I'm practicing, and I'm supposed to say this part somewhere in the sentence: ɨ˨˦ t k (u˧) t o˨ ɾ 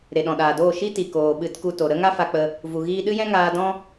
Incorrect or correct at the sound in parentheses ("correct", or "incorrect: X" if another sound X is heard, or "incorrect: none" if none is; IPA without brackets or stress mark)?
correct